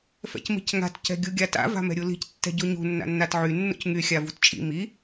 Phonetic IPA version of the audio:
f ɛ̰ c m i̤ c ŋ a̤ t c ɛ̤ ɡʲ u ɡʲ a t a̰ v a̤ m ɛ̤ ɾʲ u l i̤ c tː ɛ̤ ɟ u ɲ ṳ nː a̰ nː a t ʕ y nː ṵ c ŋ y xʲ a v ṳ t t͡ʃʼ ḭ m i

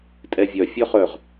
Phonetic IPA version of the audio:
tʼ ɛ vʲ œ fʲ œ χ œ ʁ

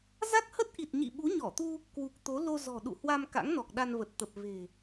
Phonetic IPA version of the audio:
z a˦˥ k̚ h ə˦˥ t̚ ʔ i˨˩ t̚ ɲ ḭ˧˨ ɓ u˨˦ ɲ ɔ˧˩ t̪ u˧ | k w u˨˩ k̚ t̪ o˨˦ l o˧ z ɔ̤˨˩ ɗ ṵ˧˨ h w a˧ m k a̰˧˥ ŋ n ɔ˨˩ k̚ ɗ a˧ n v ə˨˩ t̚ t̪ ə˨˩ p̚ v e̤˨˩

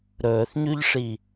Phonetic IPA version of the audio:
ɾ ɵː θ ɲ ʉ ʎ ʂ i

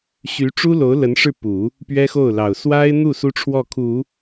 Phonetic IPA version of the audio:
ɕ y˧˥ ʈ͡ʂ u˥ l o˧˥ ʊ̯ l ə˧˥ n ʂ ɻ̩˥˩ p u˨˩˦ | p ɥ ɛ˥ x o˥˩ ʊ̯ l ɑ˨˩ ʊ̯ s w a˥ ɪ̯ n̪ u˥˩ s u˥ ʈ͡ʂʰ w ɔ˥˩ kʰ u˨˩˦

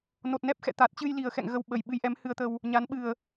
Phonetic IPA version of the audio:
n o˨˩ t̚ n ɛ˦˥ p̚ x ɛ̰˧˨ t̪ a˨˩ t̚ t͡ɕ ɨ˧ j l i˨˩ ə̯ x ɛ̰˧˨ ŋ ɣ ə˧ w ɓ ə˨˩ j ɓ ɨ˨˦ j ʔ ɛ˨˦ m h ɨ˧ ə̯ t̪ ə˧ w | ɲ a˨˦ n ɓ ɨ˨˩ ə̯

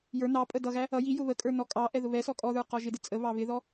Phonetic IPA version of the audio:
j ə˞ n ɑ pʼ ə d ʌ ɣ æ | ʌ j i j ʊ β ə kʼ ə˞ n ɔ kʼ ɑ ʔ ɛ ð ʊ β ɛ s ɔ kʼ ɔ ð ə˞ q ɔ ʒ ɪ d ɪ t͡sʼ ə β ɑ β ɪ ð ɔ

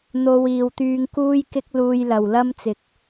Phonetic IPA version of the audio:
n̪ o˧ w iː˨ w t̪ yː˧ ŋ k uː˥ j k ɪ˥ k̚ l uː˧ j l ɐ˨ w l ɐ˥ m t͡s ɪ˨ k̚

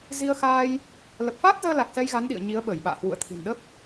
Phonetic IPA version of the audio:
z i˧ ə̯ x aː˧ j | l ə˨˩ p̚ f aː˦˥ t̚ z əː˧ l a˨˩ k̚ s ɛ˧ j ɣ a˨˦ n ɗ ḭ˧˨ ə̯ ɲ i˨˦ ə̯ ɓ əː˧˩ j ɓ a̰ː˧˨ h w ṵ˧˨ ə̯ t̪ʰ i̤˨˩ n ɗ ə˦˥ p̚

